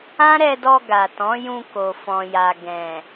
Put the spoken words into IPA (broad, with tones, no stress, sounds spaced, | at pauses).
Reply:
ã˦ ɾ ɛ˧ d ɔ˧ ɡ a˨ t ɔ̃˨˦ j ũ˧ k o˨ f ɔ̃˨ j a˨ ɡ ɛ̃˨